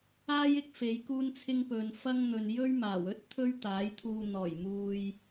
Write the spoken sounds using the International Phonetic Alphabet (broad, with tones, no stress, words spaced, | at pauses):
aː˥jɪ˧k̚ fe˨˧jkuː˥nt͡sʰɪ˥ŋ pɵ˨nfɐ˥ŋ n̪ɵ˨njɵ˥ɥmaː˨˩w ɵ˥t̚ t̪ʰɵ˥ɥt̪aː˨˥jt̪ʰuː˧ n̪ɔː˨˩j muː˧j